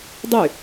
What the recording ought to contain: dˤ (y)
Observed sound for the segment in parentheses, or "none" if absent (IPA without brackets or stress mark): y